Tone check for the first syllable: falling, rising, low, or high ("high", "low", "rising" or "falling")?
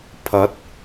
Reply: rising